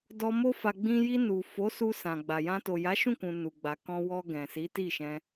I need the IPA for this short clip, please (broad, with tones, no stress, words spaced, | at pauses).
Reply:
dɔ˧mo˦ fa˧ɡ͡bĩ˦ ji˧nu˨ fo˨˦ su˧sã˨ɡ͡ba˨jã˧ to˨ja˨˦ʃũ˦˨kũ˨ nu˨ɡ͡ba˨ kɔ̃˧ wɔ˧ ɡɛ̃˨si˨˦ti˦˨ʃɛ̃˧